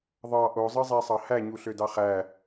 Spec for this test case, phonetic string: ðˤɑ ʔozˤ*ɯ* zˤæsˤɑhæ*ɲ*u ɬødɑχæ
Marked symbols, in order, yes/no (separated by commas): yes, yes